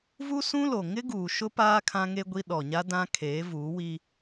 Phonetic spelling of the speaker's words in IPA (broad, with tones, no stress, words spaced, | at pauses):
vu˦sũ˦lo˨ ŋɪ˦ɡuː˨ ʃʊ˦paː˦ kʰã˦ŋe˦ɡʷi˦ ɗɔ˨ɲa˦ dã˦ kʰeː˨˦vuː˨˦wi˦